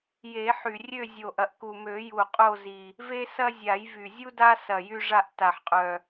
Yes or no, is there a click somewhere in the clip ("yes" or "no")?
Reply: no